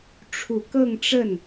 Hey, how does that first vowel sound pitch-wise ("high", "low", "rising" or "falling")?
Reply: low